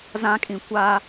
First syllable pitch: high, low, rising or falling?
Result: high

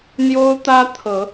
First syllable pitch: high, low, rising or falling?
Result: high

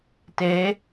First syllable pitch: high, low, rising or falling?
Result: rising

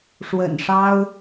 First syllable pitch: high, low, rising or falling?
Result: low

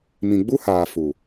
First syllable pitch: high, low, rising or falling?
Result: low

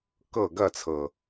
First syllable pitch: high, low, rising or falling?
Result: falling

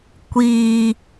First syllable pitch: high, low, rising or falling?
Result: high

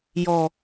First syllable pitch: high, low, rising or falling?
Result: low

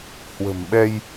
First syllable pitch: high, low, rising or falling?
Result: low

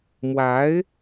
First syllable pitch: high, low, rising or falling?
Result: rising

